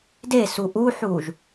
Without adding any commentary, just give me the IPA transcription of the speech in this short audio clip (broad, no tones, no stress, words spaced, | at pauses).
desu ʔuħuːʒ